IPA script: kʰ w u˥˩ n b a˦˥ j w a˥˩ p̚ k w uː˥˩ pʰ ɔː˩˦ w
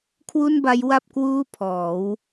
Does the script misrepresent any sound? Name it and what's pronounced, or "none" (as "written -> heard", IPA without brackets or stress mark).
none